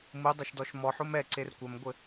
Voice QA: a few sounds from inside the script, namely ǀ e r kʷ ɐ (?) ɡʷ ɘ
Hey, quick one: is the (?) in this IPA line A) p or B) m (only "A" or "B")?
B